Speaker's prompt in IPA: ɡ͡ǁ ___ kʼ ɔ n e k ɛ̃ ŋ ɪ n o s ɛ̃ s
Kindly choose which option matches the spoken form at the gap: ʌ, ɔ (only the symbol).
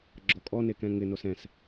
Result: ɔ